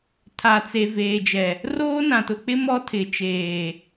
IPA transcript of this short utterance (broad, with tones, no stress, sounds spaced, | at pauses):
tʰ a˨ t͡s e˨ v eː˨ d͡ʒ ɛ˨ | r oː˦ n ã˨ t ʊ˨ k͡p ɪ˦ m ɔ˦ tʰ ɪ˨ t͡ʃ eː˨